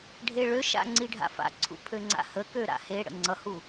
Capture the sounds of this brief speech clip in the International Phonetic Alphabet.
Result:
ɖʱ e ɭ ø ʃ a̰ ŋ͡ǀ i ɖʱ a̰ f a̰ ǀʰ ṵ pʰ ø ŋ͡ǀ a̰ h ə k ø ɾ a̰ h e ɽ ə̰ ŋ͡ǀ ʌ h u

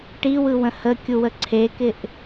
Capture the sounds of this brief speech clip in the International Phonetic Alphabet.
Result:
ʈ i w ɯ w ə̃ h ə kʲ u w ə ǀʰ e k ɪ ʔ

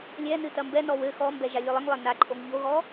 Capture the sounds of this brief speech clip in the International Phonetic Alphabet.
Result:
lʲ ɛ n ɨ t ɐ m b ɛ n ɔ w ɘ x ɔ m b ɛ ʒ a lʲ ɨ lˠ ɨ ŋ lˠ ɛ n a ǃʼ o ŋ ʎ o ɣ ɔ

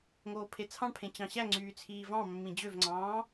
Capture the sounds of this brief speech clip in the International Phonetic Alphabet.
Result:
ŋ oː pʰ e t͡sʰ ɑ̃ ɳ pʰ ẽ t͡ɕ ɑ̃ ɕ æ ŋ͡ǀ yː t͡sʰ iː v ɑ̃ mː ĩ d͡ʑ ø v ŋ͡ǀ ɑ̃ː

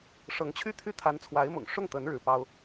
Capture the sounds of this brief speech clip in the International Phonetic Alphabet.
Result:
ʂ ɤ˧˥ ŋ t͡ɕʰ y˥˧ t̪ʰ y˥˩ t̪ʰ a˧˥ n t͡sʰ w a˧˥ ɪ̯ m ʊ̰˨˩ ŋ ʂ ʊ˥˩ ŋ t̪ ə˧˥ n ɻ ɻ̩˧˥ p ɑ˥ ʊ̯

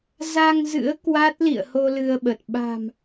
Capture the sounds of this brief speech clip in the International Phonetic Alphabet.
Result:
z a˧ ŋ z ɨ̰˧˥ ə̯ k w a˦˥ t̚ l ḭ˧˨ ə̯ h o˧ l ɨ˧ ə̯ ɓ ə˨˩ t̚ ɓ a̤˨˩ m

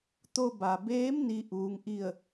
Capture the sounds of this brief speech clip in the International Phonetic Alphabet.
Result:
t̪ o˧ b a˩ b eː˧˥ m n i˧ ʔ uː˧˥ ŋ ʔ i˥˨ ə̯

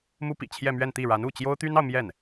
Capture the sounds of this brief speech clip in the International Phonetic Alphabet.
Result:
m u˥ p ḭ˨˩ t͡ɕʰ j ɛ˥˧ m ɥ ɛ˥˧ n t̪ i˥˩ ɻ a˧˥ n u˥˩ t͡ɕ j o˥ ʊ̯ t̪ y˥ n ɑ˨ ʊ̯ m j ɛ˥˩ n

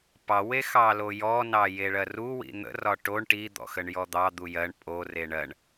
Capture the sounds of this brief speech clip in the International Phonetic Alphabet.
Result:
p ɑ w e x ɑ l o j ɔ n ɑ j e ɭ ɜ r u w ḭ n̪ ə̰ r ɒ ʈ o ɳ ʈ i d̪ ɔ̰ x ə ɳ j ɔ d̪ ɑ d̪ u j ɜ ɳ pʼ o r e ɳ ɜ ɳ

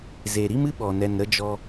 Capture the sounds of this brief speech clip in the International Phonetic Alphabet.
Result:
z e˨ ɾ i˦ m ɨ˦ ɓ ɔ˨ n ɛ˨ n ɾ ə˧ d͡ʒ ɔ˧

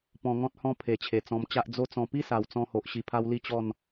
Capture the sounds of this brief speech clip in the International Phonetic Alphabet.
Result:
p ɔ̃˧ ŋ ɔ̃˦ t̚ h ɔ̃˦ pʰ e˨˩ t͡ɕʰ e˨˩ t͡s ɔ̃˧ m t͡ɕ a˦ ʔ d͡z o˦ t͡s ɔ̃˧ p i˦ s a˨˩ w t͡s ɔ̃˧ h o˨ ʔ ɕ i˧ pʰ a˦ w l i˦ t͡ɕ ɔ˥˧ n

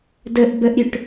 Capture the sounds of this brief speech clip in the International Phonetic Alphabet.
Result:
d ə ʔ b ə ʔ ɾʲ ø ʈ

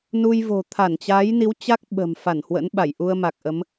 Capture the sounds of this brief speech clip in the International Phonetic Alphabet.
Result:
n u˧ j v o̤˨˩ t̪ʰ a˧˩ n t͡ɕ a˨˦ j n i˨˦ w t͡ɕ a˦˥ k̚ ɓ ə̤˨˩ m f a˧˩ n h w ə̰˧˥ n ɓ a˧˩ j ʔ u˧ ə̯ m a˨˩ k̚ ʔ ə˨˦ m

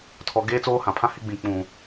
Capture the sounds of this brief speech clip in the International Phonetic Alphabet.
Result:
tʰ ɔ˨ ɡ eː˦ t͡s oː˦ h ã˨ pʰ ã˦ h ɪ˦ ɡ͡b ĩ˨ k͡p ũ˨

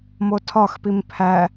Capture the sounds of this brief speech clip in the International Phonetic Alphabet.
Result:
m o tʰ ɒ x p i m pʰ æ

